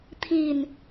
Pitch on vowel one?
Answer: low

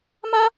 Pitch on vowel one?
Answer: high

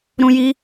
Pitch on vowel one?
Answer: high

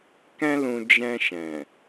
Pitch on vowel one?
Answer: high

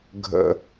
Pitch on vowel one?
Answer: low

